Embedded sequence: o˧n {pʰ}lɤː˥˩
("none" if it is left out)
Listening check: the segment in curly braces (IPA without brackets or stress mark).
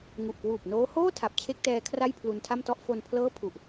pʰ